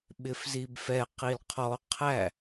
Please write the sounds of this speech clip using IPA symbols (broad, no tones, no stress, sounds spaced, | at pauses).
ɓ ɪ f z i b f ɛ q i l qʰ ɔ qʰ æ